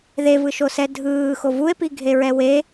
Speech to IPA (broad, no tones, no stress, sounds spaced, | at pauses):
ð e v ɯ ʃ o s ɛ dʱ ɯː x o v u e̯ p i ɡʱ e ɹ ɛ w e